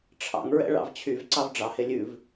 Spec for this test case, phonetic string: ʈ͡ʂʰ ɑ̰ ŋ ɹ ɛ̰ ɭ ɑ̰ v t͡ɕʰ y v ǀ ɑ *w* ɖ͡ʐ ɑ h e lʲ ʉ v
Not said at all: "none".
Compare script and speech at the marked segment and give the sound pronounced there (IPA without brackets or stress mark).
v